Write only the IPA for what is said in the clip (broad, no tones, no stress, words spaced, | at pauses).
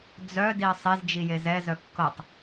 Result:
d͡zœ diɐ̯sˤez d͡ʒijezɛ zœkːɤtˤ